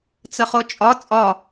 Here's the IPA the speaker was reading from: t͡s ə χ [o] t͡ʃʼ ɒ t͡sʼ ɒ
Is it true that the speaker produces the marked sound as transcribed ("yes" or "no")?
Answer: yes